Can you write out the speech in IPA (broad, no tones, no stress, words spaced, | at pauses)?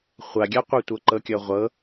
χʷaɡʲaqʷatʷɤ ǃɤkʲɤʁʷɤ